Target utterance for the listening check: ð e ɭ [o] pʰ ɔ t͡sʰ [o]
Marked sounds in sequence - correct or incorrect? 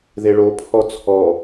correct, incorrect: ɔ

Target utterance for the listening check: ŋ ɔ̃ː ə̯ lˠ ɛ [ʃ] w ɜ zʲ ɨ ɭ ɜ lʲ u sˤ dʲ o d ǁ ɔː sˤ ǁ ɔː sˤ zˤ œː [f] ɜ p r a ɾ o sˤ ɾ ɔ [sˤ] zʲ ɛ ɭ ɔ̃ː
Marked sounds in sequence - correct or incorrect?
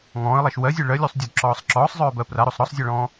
correct, incorrect: b, correct

